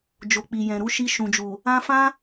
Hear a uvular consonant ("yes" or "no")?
no